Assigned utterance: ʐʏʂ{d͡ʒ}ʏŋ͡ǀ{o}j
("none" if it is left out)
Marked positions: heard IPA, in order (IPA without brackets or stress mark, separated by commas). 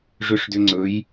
d, ɵ